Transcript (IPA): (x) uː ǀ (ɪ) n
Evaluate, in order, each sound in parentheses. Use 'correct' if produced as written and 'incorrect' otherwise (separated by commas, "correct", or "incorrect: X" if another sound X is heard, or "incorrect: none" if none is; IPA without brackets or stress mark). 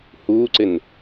incorrect: h, correct